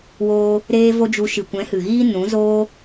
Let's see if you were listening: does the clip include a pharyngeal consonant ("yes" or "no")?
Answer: no